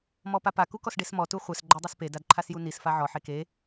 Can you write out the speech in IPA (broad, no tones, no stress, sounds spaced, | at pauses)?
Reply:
m ɔ p a p a k u k ɔ s ɖ e s m ɔ t u χʷ ɛ s ɡ͡ǃ œ dˤ ø s p e d a d ǃʰ a s j u n i s f a ʕ ɔ ħ e k e